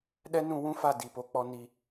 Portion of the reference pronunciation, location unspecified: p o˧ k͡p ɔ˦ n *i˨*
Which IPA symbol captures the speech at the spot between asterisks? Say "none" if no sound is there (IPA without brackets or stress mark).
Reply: i˨